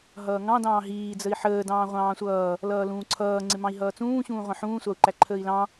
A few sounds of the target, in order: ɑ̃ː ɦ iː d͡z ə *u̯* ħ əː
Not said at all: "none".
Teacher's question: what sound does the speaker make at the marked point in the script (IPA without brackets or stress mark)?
i̯